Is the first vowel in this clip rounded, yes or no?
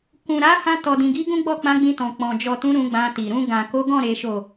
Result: yes